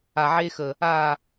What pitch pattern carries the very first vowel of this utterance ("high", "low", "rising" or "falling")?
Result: low